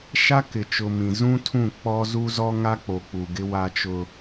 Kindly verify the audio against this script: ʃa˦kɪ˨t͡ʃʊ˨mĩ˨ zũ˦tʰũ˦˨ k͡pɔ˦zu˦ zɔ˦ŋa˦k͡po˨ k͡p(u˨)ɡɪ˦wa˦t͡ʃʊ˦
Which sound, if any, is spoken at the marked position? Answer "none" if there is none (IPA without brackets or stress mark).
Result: u˨